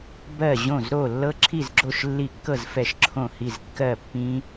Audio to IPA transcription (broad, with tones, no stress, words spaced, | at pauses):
bɜ˥˩ʑõ˥˩z ɾo˥˩ lːɤ˦˥ǁʰi˥˩zɡ͡ǁo˥˩ʃ lːi˥˩ kːɤ˥˩z fɛ˥˩ʃǁʰõ˥˩hi˥˩z kːɜ˥˩pːĩ˦˥